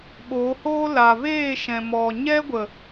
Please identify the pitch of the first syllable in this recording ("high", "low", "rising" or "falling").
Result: rising